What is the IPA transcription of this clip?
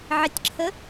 ʕɪtʲǁʰə

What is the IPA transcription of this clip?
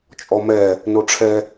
t͡ʃʼɔmɛ | noʈ͡ʂʰɛ

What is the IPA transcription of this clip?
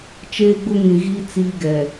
t͡ʃeː˦ɡ͡bʊ˦ŋĩ˨ɣiː˦ t͡siː˦ɡɛ˨

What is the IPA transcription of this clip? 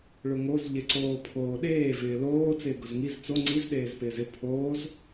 ɭʊŋoz ʎɪǀoːpʰoːɗeː vɪːloː t͡sɪːɡʊzŋiz t͡so ŋ͡ǀiz ɗeːzpɪːzɪ pʰoːz

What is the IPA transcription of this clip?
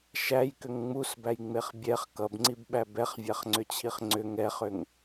ʃæjkʏŋ ŋ͡musbæjŋ͡meχ bʲɛχ kʌbŋ͡ǀibɓæ bɛχvʲæχŋ͡ǀʏt͡ɕʰiχ ŋ͡ǀʏ ŋɛχʏŋ

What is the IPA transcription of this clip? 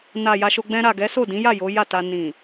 na˨ ja˧ʃo˧ ɡ͡bɛ̃˧ɾa˨ ɡɛ˨˦so˦˨dĩ˨˦ja˦˨ jo˨˦ja˦˨ta˧ nĩ˨

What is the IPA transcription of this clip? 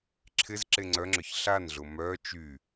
ǁʰɪz ǁeŋ͡ǀœŋ͡ǁœç ɬanɮʊ mœ t͡ʃy

